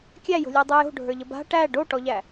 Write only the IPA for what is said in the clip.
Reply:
kʲ æ j o̤ lʲ æ dˤ ʉ j o̤ ɖʱ ə˞ ʎ ə b a̤ ʈ æ ɖ o ʈ ɔ ʎ æ

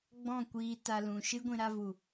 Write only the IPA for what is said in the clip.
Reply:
ɡ͡b ɔ̃˦˨ kʷ iː˧ t a˧ l ũ˨ ʃ ɨ˦ ɡʷ ĩ˧ ɾ a˧ v u˨

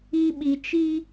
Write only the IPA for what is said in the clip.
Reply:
i˦ ɓ i˨ t͡ʃ iː˦

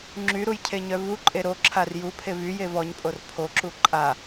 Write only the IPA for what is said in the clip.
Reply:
ŋ͡ǁ y ɾ u j cʰ e ɲ œ v u ǃʼ e ɾ o ǁʰ a r j u pʰ e v y j e v ɔ ɲ pʼ o r pʰ o ǁ u ǃʼ a

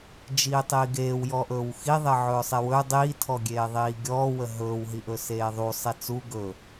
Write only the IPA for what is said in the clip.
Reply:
d͡ʒ iː tˤ iː ɡ eː w j ɔ ʔ ɵː w x i ðˤ e ʕ ɵː sˤ e w ɵ dˤ i tʰ ɔ ɡʲ eː ðˤ iː ɡʲ ɔː w ə ɦ ɵː w ɦ i ʔ ɵ s eː ðˤ u sˤ e t͡s u ɡ ɵ

